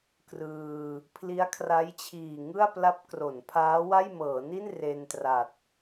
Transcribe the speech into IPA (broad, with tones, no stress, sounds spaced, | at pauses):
k r ɯː˧ | pʰ l i˦˥ a̯ kʰ r a˦˥ j t͡ɕʰ iː˨˩ ŋ ɯ˥˩ a̯ p l a˦˥ p̚ k r o˩˦ n pʰ aː˦˥ w a˥˩ j m ɤː˩˦ n i˥˩ n r e˧ n t r a˨˩ t̚